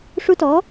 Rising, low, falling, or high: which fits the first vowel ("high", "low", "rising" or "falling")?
high